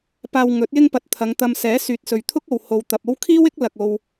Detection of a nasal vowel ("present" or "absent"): absent